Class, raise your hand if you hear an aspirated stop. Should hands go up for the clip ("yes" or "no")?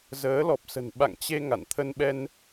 yes